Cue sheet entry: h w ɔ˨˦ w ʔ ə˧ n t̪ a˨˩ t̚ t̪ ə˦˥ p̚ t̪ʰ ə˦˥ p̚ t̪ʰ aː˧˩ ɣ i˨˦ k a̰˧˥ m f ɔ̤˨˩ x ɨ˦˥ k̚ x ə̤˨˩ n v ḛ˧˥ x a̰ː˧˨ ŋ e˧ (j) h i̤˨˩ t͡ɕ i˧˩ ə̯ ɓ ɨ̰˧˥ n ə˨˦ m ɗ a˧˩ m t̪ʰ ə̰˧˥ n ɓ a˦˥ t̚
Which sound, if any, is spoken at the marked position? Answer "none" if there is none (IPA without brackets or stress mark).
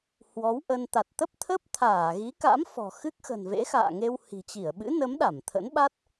w